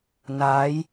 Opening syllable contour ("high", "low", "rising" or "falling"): rising